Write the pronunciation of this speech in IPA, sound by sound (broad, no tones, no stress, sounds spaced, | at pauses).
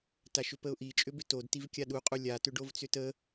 t a ʃ ʏ p ə ʊ̯ ʔ i t͡ʃʼ ʏ b ʏ t o d t i v kʲ a ɗ u qʼ u lʲ a t ʏ ɖ o v t͡s ʏ t ə